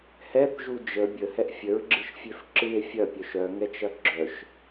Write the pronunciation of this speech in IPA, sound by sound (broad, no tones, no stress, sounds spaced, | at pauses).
h ɛ θ ʒ u d͡ʒ ə bʲ ə h ɛ ʔ fʲ ə ɹ ɡ͡ǁ ɨ ʃ fʲ ø f ǁ ɨ e̯ fʲ ɐ pʲ œ ʃ œ ŋ ɛ t͡ʃ ɐ ɡ͡ǁ œ ʃ